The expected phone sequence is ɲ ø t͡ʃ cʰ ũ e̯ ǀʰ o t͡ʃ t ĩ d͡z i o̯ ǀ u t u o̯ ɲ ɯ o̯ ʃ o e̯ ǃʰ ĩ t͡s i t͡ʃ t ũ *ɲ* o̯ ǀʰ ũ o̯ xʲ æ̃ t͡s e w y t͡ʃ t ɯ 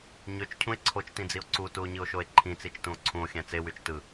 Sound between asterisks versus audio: incorrect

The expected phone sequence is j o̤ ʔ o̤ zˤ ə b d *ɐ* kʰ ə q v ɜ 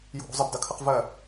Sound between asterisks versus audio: correct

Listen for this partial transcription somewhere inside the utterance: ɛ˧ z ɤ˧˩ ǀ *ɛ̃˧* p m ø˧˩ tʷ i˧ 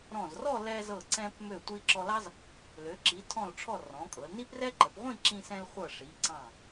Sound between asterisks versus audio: correct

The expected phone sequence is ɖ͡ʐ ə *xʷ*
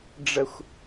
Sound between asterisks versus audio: correct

